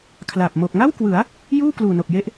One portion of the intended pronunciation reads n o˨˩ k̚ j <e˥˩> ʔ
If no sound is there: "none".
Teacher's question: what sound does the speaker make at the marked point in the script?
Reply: e˦˥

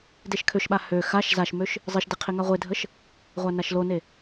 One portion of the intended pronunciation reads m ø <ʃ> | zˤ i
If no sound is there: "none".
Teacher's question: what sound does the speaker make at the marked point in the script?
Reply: ʃ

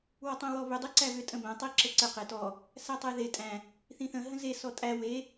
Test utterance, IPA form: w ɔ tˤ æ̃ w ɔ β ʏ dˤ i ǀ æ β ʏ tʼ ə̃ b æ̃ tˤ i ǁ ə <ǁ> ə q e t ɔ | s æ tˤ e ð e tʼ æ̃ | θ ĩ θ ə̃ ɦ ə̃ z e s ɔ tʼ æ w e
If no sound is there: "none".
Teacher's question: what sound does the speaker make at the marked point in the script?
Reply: ǀ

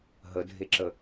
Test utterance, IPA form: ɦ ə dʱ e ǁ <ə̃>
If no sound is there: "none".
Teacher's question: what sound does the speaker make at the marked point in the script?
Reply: ə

